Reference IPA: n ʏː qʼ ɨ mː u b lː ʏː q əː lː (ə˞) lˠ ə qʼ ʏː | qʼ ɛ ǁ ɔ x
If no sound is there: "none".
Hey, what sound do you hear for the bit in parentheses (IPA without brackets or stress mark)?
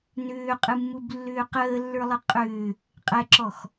ə˞